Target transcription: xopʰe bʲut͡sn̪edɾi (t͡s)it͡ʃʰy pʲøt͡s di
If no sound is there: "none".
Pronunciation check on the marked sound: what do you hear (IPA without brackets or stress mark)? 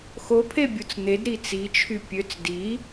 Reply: t͡s